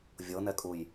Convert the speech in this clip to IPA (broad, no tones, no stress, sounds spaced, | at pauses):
vʲ ɤ n ɛ kʼ u j